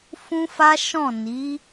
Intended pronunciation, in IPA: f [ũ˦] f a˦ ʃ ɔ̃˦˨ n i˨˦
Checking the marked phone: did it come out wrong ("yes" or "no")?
no